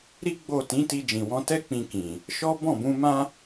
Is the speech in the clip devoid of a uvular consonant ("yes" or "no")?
yes